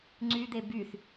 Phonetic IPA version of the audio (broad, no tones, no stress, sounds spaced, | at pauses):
ŋ͡ǀ y d̪ e b y θ